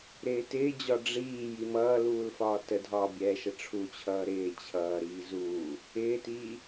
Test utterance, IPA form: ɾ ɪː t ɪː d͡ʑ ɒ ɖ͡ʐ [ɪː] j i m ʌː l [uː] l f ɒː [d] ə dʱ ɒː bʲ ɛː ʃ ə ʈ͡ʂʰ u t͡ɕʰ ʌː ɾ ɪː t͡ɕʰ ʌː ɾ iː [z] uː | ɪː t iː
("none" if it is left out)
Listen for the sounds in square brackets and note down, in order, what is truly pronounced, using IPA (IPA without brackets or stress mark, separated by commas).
iː, uː, t, z